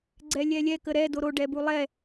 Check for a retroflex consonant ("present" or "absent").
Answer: present